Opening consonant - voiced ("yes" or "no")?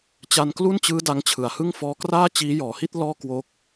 no